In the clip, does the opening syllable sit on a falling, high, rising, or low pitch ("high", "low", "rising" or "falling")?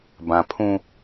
low